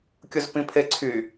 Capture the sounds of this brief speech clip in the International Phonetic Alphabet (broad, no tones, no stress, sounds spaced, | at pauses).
kʲ ʊ z p ĩ pʰ e ǀʰ y